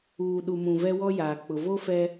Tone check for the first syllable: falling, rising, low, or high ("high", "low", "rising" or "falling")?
low